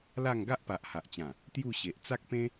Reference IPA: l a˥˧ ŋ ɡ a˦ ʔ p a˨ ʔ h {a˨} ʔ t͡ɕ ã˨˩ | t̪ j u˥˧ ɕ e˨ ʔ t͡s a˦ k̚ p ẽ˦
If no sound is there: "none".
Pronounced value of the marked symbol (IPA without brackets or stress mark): a˨